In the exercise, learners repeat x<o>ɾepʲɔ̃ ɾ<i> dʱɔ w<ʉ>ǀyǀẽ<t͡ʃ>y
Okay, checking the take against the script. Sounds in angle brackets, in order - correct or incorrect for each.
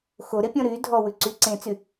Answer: correct, incorrect: y, correct, incorrect: t͡s

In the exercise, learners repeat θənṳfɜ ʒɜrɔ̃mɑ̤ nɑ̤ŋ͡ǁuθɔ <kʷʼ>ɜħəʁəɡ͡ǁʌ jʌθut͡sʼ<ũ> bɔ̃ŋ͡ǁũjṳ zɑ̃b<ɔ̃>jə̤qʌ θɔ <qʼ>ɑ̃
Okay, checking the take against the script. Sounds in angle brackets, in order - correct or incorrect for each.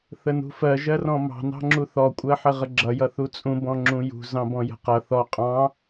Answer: correct, correct, correct, correct

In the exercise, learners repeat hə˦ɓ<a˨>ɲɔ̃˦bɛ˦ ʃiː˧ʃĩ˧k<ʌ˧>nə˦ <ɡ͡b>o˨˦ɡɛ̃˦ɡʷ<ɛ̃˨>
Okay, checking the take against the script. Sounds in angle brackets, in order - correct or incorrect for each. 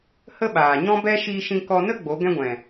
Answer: incorrect: aː˨, incorrect: ɔ˧, correct, correct

